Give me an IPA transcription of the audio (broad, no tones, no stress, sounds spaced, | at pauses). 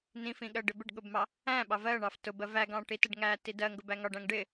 n ĩ f ĩ ɠ ɜ ɖ ɪ b ɪ ɖ ɠ ʊ b m ɑ | æ̃ ɓ ɑ v ɜ ɳ ɑ f t ʊ b ɜ v æ ɡ ɑ̃ ʈ i t ɪ ɖ ŋ æ t i d ɜ ŋ ɡ ʊ b æ ŋ ɒ ɖ æ̃ ŋ ɖ ɪ